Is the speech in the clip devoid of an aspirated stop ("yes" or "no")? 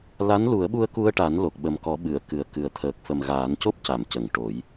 no